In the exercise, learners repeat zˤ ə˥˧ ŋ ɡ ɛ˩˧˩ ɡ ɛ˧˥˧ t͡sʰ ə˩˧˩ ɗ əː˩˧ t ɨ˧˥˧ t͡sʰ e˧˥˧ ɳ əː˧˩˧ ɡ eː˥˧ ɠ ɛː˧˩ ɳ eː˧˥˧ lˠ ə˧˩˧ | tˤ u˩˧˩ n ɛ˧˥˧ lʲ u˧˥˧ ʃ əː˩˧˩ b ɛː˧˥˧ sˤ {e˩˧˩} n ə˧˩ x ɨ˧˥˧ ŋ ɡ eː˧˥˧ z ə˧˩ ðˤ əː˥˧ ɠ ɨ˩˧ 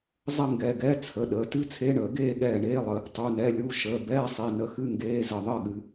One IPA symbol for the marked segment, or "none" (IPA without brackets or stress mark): e˩˧˩